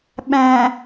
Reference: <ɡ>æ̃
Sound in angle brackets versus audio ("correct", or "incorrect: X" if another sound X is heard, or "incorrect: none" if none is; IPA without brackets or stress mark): incorrect: ɓ